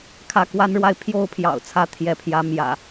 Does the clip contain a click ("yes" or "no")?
no